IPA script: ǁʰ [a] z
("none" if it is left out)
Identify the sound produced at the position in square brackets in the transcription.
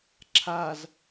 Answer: a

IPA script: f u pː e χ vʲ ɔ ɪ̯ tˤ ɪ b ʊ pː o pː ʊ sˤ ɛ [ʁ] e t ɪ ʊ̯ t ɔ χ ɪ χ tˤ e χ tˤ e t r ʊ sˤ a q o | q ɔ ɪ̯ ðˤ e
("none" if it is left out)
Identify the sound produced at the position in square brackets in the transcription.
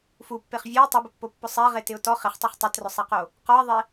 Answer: ʁ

